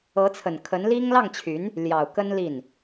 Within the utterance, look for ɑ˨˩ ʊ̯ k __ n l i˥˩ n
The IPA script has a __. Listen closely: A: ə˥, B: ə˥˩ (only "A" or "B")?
A